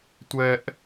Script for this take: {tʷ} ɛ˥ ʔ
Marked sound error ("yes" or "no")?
no